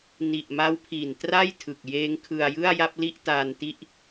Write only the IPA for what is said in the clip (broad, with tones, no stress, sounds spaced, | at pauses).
n i˨˩ ʔ m a˦˥ w pʰ i˨˩ n t r a˥˩ j tʰ ɯ˨˩ k̚ j eː˦˥ ŋ kʰ ɯ˧ a̯ j ɯ˥˩ a̯ j a˥˩ p̚ l i˥˩ ʔ t aː˧ n t i˥˩ ʔ